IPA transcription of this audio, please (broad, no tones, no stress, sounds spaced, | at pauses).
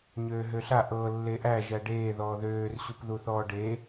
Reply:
ɲ øː ɦ ø ɬ a ʔ ɤ lː e ʔ æ ʒ æ ɖ eː ð ɔː ð øː r ɕ u p ð u θ ɔː ɖ e